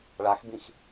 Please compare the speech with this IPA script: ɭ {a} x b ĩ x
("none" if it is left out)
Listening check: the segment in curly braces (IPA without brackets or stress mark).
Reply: a